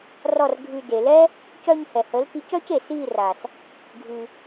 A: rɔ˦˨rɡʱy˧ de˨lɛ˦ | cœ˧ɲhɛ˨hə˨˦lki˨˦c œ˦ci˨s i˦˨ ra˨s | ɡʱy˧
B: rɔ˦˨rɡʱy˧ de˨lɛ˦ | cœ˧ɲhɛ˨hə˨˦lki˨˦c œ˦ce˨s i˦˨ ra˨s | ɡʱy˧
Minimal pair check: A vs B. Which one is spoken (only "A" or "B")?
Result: B